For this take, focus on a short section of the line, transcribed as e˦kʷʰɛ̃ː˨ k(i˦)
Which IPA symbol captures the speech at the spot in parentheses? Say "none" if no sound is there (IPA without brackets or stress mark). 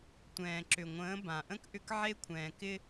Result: ɪ˦